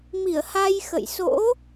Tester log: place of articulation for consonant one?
labial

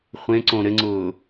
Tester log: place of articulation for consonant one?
uvular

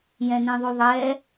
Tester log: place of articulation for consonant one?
palatal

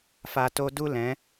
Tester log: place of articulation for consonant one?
labial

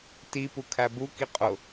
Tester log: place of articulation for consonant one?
alveolar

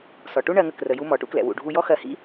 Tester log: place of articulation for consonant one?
alveolar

